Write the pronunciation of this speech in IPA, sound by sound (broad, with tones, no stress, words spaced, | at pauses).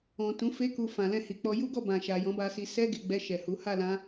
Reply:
ɔ̃˨tũ˨˦fe˦ku˧ fã˨lɛ̃˧hi˨k͡pɔ˧ ju˦ɡɔ˦˨bã˨ ʃa˨ jɔ̃˨˦ba˧si˧ sɛ˦ɡe˧ɡ͡bɛ˧ ʃɛ˨hu˨˦ ha˦˨lã˧